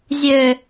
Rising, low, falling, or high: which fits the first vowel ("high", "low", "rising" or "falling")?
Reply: low